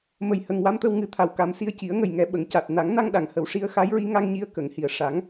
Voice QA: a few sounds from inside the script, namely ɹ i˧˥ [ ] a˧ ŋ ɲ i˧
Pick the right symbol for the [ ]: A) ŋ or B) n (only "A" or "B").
A